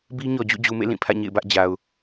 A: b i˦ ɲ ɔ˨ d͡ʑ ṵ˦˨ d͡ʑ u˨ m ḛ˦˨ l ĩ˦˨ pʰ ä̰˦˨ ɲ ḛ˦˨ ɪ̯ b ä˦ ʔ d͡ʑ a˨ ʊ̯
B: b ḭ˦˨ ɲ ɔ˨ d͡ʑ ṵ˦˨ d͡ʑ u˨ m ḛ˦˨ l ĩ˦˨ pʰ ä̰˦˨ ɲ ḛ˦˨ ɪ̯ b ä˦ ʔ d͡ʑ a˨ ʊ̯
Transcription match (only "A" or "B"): A